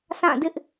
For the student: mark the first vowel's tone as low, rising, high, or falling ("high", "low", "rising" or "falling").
falling